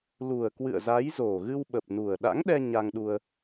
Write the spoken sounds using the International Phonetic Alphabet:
lu˨˩ə̯kwɨ̰˧˨ə̯za˨˦j zo˨˩ɣɨ˧wɓə˨˩p̚nu˨˩ə̯ ɗa̰˧˥ŋɗɛ˧ ɲa˧ŋɗu˧ə̯

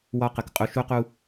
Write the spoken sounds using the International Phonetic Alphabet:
wɒ˧qə˨k qʼu˧ʃu˦qu˦

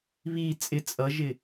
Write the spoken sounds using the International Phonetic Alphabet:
βi t͡sʼɪ t͡sʼʌʒɪ

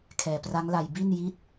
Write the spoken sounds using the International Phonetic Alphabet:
kʰɛː˨˩pra˦˥ŋla˧j bi˥˩n ji˥˩t̚

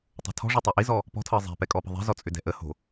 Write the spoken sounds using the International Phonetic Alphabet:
tˤo̤tʰɔ̤ʐo tˤæʔizɔ | pɔ̤tʰɤ zˤɛ̤pɛ kʼɔpə̤ðˤɛ̤zɔ t͡sʼʏdɛ̤ʔəho̤

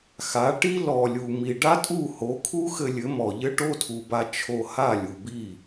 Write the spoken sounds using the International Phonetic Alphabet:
xa˨˦ʈi˦ lɔ˨lʲu˨ mi˨ɖa˦tʼu˦˨ho˨˦ kʰu˦xɘ˧lʲɘ˨˦mɔ˨ ʎɘ˦ʈo˦tʰu˨ba˧ t͡ʃʰo˧ha˦˨ lʲu˨bi˦˨

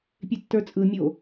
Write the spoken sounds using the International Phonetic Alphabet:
pʲetːə˞t͡sʼɯ mʲo

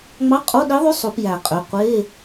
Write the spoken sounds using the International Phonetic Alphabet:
ŋ͡mɑ˧˥˧qʼo˧˥˧ɗi˧˥ ðˤy˧˥˧ sˤu˨˩˦pjæ˨˩˦qʼø˩˧˩ qʷe˧˥˧

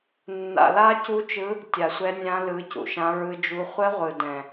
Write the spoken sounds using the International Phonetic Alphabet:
nːa̰˧la˦˥cu˦˥t͡ʃɯ˦˥ | tʲa˧sʷɛ˦˥nʲã˦˥ lɯ˦˥ cṵ˧ʃã˦˥ɹɯ˦˥d͡ʒu˦˥ χʷɘ˦˥ʁʷɯ˧dɛ̃˧

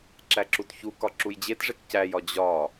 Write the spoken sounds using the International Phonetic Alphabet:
ǁæǁutçu kɒǁujd͡ʑetʐek cæjɒ d͡ʑɒ

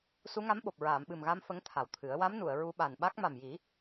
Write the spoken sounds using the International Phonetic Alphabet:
su˧˥ŋa˧˥mɓo˨˩p̚ ɹaː˨˩˨mɓɨ˨˩mɣa˧m fə˧˥ŋt̪ʰa˨˩wt̪ʰɨ˨˩˦ə̯ wa˧˥mnu˨˩˨ə̯ ɹu˧ ɓa˨˩nɓa˦˥k̚ ma˨˩mji˨˩˦

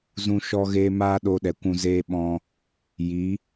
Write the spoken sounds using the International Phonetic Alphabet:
zũ˧ ʃɔ˧ɣeː˧ maː˦ ɗo˧ɗɛ˨kʷũ˧ zeː˧ɓɔ̃˧ | ji˨˦

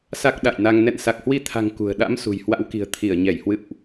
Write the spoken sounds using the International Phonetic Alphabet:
sa˦˥k̚ɗa̰˧˨jna˧ŋ nɛ̰˧˨nsa˨˩k̚hwi˧t̪ʰa̤˨˩ŋ kṳ˨˩ə̯ ɗa̰˧˥m sṳ˨˩jhwa̰˧˥wki̤˨˩ə̯ t̪ʰi˧˩ə̯ɲɛ˧˩j hwɨ̰˧˨wʔ

